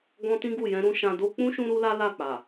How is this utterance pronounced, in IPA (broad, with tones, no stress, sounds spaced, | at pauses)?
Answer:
ɡ ɔ̃˧ t ĩ˦ ɡ u˦˨ j ɛ̃˧ ɾ ũ˧ ʃ ã˧ d o˦ k͡p ũ˦ ʃ ũ˦ ɾ u˦ l a˦ l a˦˨ k͡p a˨